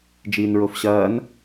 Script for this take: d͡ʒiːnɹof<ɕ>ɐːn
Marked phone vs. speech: correct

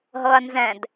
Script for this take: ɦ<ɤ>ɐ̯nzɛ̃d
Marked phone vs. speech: correct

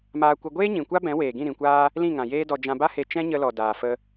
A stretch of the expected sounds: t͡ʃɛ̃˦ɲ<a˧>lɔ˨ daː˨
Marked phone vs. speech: incorrect: ə˧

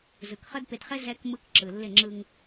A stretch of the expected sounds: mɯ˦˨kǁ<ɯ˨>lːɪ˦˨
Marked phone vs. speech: correct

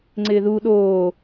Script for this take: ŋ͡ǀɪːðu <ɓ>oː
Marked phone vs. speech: incorrect: ɗ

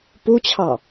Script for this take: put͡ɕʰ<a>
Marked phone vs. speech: incorrect: ɑ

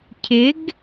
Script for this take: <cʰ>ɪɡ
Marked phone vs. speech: correct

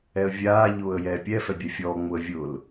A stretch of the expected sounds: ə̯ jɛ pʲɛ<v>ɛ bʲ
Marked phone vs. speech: incorrect: f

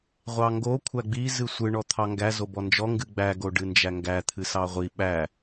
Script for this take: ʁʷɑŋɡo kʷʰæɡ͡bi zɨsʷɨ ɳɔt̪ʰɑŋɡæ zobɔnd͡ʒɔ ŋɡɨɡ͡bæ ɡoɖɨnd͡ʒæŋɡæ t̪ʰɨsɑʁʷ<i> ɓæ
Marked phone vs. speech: correct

